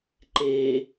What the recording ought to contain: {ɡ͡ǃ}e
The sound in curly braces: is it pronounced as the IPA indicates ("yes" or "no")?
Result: no